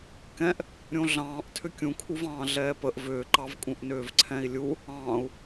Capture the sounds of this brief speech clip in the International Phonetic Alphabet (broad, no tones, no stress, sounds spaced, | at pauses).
k ɛ̃ ʔ | ɾʲ õ ɮ ɑ̃ː ʔ tʰ ʏ kʲ ũ kʰ u v ɑ̃ː ɮ ɛː p ə ʔ v ʏː ǃ ɑ v kʼ ũ ʔ n ʏː v ǀʰ ɛ̃ i̯ lʲ u | ɑ̃ː u̯